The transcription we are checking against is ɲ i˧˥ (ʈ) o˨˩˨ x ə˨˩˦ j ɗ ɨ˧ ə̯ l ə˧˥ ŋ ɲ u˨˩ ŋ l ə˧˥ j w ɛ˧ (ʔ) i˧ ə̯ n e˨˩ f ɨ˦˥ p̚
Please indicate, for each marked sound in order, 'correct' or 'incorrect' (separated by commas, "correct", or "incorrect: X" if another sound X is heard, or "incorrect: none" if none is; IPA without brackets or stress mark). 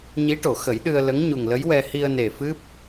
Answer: correct, incorrect: h